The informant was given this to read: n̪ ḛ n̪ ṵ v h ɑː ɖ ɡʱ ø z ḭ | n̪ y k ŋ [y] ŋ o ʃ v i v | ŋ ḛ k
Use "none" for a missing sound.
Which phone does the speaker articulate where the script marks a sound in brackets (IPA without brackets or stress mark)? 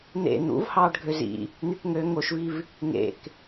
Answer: ø